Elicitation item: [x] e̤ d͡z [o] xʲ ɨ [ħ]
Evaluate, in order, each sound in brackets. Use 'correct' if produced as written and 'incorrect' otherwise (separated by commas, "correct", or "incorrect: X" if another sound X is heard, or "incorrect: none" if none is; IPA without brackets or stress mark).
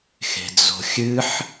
correct, incorrect: o̤, correct